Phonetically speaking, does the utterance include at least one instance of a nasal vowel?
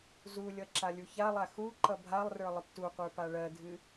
no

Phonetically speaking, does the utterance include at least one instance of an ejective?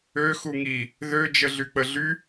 no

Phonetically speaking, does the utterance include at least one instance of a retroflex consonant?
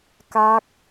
no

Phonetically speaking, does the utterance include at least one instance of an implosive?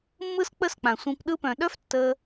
yes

